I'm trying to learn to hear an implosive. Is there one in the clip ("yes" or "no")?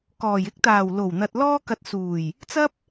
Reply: no